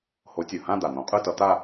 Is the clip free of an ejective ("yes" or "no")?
no